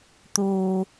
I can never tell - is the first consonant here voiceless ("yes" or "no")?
yes